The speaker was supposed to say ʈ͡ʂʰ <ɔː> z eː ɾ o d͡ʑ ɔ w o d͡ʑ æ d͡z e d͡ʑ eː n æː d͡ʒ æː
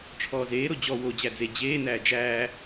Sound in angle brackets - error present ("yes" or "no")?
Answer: no